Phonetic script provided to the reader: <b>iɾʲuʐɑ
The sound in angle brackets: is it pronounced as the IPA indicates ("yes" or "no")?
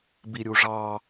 yes